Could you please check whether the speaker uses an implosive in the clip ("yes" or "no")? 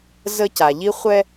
no